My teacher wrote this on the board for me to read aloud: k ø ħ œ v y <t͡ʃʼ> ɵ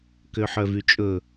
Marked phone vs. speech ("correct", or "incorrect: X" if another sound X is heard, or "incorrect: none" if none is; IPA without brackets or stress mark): correct